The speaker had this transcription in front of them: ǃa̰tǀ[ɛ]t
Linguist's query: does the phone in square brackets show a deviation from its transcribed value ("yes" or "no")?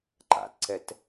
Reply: no